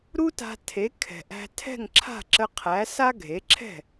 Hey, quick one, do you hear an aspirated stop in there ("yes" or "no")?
yes